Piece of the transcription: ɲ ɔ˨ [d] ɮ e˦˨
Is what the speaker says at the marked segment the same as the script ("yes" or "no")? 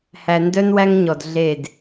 yes